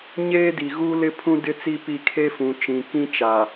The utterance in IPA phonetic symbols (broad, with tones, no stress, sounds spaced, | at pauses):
ɲ eː˦ d i˨ ɣ uː˦ l ɪ˦ pʰ ũ˦ d ɪ˦ t͡s i˦ p i˦˨ kʰ e˦ f ũ˨ t͡ʃ ĩ˨ k ĩ˦ t͡ʃ a˨